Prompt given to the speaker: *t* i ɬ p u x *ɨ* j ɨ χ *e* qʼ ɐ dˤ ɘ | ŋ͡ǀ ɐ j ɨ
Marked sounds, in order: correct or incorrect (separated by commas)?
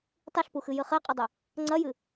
incorrect, correct, correct